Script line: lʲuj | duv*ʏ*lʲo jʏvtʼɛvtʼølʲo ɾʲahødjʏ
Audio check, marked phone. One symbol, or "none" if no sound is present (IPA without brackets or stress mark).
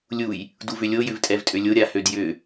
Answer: ʏ